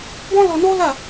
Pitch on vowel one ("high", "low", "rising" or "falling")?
high